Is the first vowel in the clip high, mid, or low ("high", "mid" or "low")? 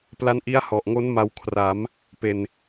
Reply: low